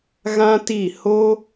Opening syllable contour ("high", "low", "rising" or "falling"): high